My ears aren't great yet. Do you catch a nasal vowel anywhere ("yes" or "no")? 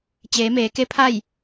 no